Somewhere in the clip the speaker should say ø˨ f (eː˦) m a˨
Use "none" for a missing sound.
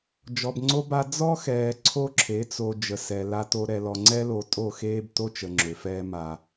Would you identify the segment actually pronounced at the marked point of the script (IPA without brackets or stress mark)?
ɛː˦